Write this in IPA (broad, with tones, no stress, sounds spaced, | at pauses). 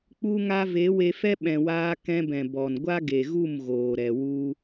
k͡p u˧ ŋ a˧ v e˨˦ w e˧ f ɛ˦ ɓ ɛ̃˨ w aː˧ k ɛ̃˧ b ɛ̃˨ b ɔ˨ n ɡʷ a˦ ɡ e˨ ɣ u˦˨ m ɣ oː˨ ɾ ɛ˨ w u˧